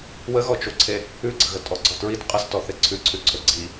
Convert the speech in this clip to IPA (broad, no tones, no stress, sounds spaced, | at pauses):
w ə ɣ ɔ t͡ʃ o ǀʰ e | ʉ ɡ͡ǀ ə ɣ ə tʼ ɔ ɡ͡ǀ ɔ t ɹ i t qʼ ə s t ɔ θ e ǀʰ ʉ ǀʰ ʉ ǀʰ ɵ ɡ͡ǀ i